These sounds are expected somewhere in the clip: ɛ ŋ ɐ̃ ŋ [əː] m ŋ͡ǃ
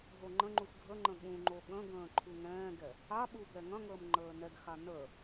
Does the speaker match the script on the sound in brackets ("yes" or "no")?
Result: yes